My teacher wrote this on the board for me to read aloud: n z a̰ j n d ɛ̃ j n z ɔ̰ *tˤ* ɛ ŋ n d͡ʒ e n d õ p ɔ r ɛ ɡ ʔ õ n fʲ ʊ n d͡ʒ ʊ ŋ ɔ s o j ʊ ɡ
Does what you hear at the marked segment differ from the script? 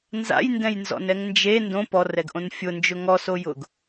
yes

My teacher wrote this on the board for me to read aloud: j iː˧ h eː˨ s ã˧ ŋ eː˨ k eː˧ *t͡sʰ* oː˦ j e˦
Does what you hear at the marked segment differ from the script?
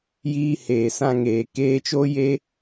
yes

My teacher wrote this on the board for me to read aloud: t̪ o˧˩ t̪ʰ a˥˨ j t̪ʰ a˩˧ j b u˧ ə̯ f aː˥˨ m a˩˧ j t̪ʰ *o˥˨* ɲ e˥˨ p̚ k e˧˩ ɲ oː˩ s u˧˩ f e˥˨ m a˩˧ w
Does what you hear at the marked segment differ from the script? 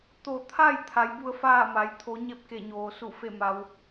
yes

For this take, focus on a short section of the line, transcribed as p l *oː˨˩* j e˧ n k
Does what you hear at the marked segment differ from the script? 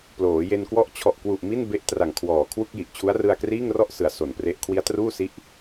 yes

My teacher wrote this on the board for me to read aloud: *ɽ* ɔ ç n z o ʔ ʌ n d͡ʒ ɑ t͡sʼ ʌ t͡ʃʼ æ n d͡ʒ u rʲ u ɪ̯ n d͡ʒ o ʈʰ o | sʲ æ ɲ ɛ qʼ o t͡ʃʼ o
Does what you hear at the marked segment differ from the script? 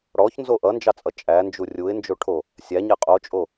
no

